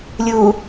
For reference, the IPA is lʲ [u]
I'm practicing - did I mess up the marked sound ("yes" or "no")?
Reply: yes